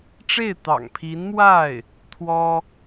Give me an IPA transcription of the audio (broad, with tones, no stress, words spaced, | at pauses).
ʈ͡ʂe˥˩ɪ̯t̪ɑ̰˨˩ŋpʰi˧˥nmwa˥˩ɪ̯ | t̪ʰwɔ˥